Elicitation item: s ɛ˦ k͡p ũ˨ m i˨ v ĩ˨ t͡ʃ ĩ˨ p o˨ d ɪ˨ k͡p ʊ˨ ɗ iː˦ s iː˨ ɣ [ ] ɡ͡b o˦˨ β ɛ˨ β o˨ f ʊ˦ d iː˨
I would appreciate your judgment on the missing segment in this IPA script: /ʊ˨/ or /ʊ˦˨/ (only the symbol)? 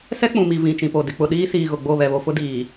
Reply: ʊ˨